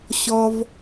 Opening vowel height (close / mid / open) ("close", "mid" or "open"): mid